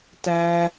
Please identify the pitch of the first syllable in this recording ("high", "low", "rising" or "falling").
high